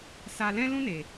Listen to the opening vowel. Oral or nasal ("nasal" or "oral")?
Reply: oral